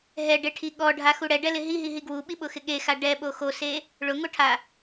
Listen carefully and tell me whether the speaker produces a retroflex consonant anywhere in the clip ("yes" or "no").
yes